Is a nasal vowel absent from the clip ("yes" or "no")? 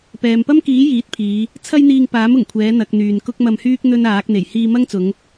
yes